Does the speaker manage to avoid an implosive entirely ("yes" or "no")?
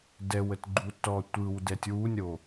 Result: yes